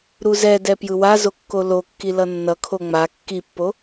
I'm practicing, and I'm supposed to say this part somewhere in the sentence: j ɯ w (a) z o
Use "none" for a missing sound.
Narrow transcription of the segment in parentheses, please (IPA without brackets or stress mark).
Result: a